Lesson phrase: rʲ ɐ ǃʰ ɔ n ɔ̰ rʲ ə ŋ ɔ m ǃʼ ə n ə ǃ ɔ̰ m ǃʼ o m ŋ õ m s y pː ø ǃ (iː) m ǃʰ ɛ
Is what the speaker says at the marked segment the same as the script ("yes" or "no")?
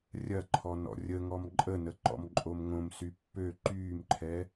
no